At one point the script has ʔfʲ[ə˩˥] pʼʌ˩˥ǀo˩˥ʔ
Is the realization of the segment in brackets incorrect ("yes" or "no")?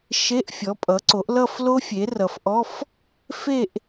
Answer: yes